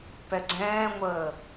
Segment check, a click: present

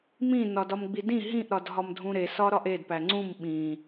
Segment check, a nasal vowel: present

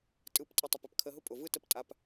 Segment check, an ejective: present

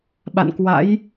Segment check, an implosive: present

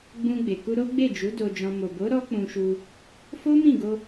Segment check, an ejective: absent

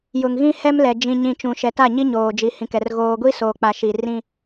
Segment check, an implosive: absent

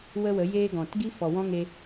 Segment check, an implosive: absent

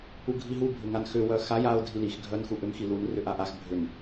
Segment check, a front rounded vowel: present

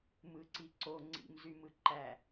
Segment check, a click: present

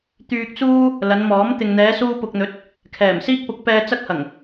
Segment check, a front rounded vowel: present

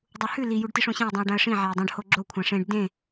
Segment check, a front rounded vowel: absent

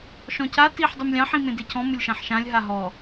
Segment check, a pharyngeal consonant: present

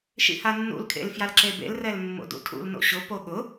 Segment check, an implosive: present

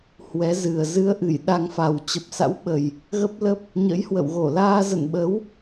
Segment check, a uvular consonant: absent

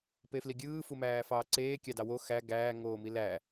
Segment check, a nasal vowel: absent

